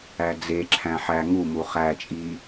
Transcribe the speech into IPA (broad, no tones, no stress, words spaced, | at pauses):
æd͡zeǁʰæ̃ ħæ ŋumu χæt͡ʃʼi